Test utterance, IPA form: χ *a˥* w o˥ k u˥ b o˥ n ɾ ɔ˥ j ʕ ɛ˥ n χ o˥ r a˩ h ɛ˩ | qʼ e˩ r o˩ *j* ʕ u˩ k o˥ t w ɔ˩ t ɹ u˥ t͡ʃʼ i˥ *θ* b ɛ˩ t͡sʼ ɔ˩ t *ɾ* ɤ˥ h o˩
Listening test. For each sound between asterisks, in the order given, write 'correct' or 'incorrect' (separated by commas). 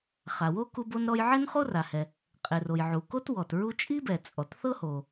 incorrect, correct, incorrect, incorrect